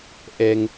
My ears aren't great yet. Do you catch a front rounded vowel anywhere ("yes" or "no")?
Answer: no